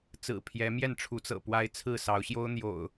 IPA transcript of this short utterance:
t͡s ɹ̩˨˩ pʰ j ɛ˨˦ m j ɛ˥˨ n ʈ͡ʂʰ u˨˦ t͡s ɤ̰˨˩ p w a˦ ɪ̯ t͡sʰ ɹ̩˥˨ s ɑ˨˦ ʊ̯ ɕ j o˦ ʊ̯ n̪ j o̰˨˩ ʊ̯

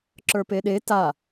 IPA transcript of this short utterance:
ǁ ə˞ p e ɗ e t a

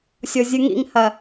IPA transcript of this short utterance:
sʲ o zʲ ɨ ŋ ḭ ŋ h ɐ

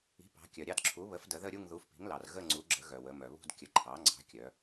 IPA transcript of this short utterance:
i̤˩˥ p ɑ̤˩˧ kʲ œ˩ ɾʲ ɑ˥˧ d ǁʰ u˩˥ β ə˩˥ f d ə˩˧ ð ə˥˧ ɾʲ u˥˧ ŋ ð u˩˥ f p i̤˩˥ ŋ l ɑ˩ r ɣ ə˥˧ ŋ͡ǀ u˩˥ ɡ͡ǁ ə˩˥ ɣ œ˩ w ə˩˧ m œ˩ β ṳ˥˧ d kʲ ə˩˥ ǃʰ ɑ˩˥ ŋ͡ǀ ɑ̤˩˥ kʲ œ˩˧

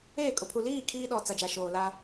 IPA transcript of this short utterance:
eː˦˨ kʼ ʊ˨ pʰ u˨ l iː˦˨ kʰ iː˦ ɗ ɔ˨ t͡s a˨ d͡ʒ a˨ ʃ oː˨ l a˦

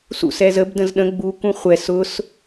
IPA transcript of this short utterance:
s ṵ s ɛ z ə b d ə̃ z ɗ ə̃ ɡ͡b u k ũ χʷ ɛ s ʊ s

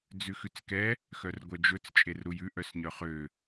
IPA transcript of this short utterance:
d͡z ʉ x ʉ t͡s k ɛ | x œ r ɡʷ œ d͡ʒ ɵ t͡s t͡ʃʼ e r ɾ u j ʉ ʔ œ s ɲ œ χ ø

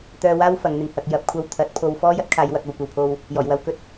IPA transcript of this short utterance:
t̪ œː˧ w aː˥ w f ɐ˨˧ ŋ n̪ ɪ˧ ŋ h ɐ˨ k̚ j ɐ˨˥ p̚ kʷʰ ɐ˧ w t̪ʰ ɐ˨˥ t̚ pʰ o˧ w f ɔː˥ j ɐ˥ t̚ kʰ aː˧ j w ɐ˨ k̚ ɐ˨ w kʷ ɐ˨ w pʰ o˧ w | j ɔː˨˩ j w ɐ˧ w k ɵ˥ t̚

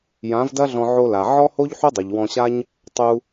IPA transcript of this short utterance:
j ã˨˦ v d ɐ˦ ɮ ɔ̃˧ ʕ o˧ l a˨ ʕ ɔ˦ h o˦ ʎ ħ u˦ dˤ i˨ ʎ w ɔ̃˧ ɕ a˦ ɲ | tˤ u˧

